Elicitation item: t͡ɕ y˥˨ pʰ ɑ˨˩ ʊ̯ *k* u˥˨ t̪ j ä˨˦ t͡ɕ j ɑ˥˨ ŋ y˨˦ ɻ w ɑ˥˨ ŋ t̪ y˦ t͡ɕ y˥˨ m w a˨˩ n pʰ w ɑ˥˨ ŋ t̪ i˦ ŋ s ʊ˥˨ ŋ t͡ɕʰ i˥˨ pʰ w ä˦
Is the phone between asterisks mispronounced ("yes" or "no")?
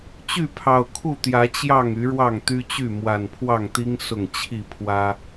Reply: yes